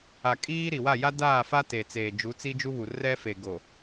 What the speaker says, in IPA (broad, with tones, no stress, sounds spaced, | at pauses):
a˨ kʼ iː˦ ɾ i˨ w a˦˨ j a˦ d aː˦˨ f a˦ t e˨ t͡s eː˨ d͡ʒ u˨˦ t͡s i˦ d͡ʒ u˦ β u˨ r ɛ˦ f e˨ ɡ o˨